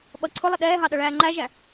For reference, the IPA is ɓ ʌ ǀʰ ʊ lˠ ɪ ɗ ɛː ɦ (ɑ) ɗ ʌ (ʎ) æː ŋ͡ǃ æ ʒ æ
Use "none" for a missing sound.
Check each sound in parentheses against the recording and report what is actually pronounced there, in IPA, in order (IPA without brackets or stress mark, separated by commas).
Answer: ɑ, ɭ